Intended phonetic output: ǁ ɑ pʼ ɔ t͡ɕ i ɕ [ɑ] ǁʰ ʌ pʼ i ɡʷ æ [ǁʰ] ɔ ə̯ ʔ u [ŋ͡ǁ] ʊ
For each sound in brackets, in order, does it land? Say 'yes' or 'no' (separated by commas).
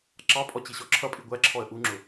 no, yes, yes